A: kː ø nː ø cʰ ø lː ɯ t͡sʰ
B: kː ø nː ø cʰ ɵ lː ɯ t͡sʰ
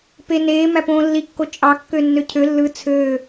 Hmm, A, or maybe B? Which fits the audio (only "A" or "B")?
A